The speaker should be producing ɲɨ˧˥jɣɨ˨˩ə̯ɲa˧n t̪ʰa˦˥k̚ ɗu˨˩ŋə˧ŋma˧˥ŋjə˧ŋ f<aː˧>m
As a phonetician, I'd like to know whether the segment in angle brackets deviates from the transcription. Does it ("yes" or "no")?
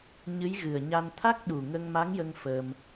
yes